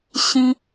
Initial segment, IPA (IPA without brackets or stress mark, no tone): ɕ